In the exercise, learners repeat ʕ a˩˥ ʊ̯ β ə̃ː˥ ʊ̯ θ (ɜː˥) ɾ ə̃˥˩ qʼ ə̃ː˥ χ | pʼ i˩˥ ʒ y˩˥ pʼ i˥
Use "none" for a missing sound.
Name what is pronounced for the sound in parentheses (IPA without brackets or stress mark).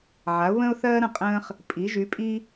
ɜː˥